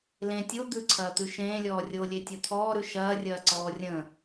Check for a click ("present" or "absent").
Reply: present